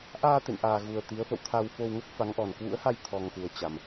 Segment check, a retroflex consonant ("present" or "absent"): absent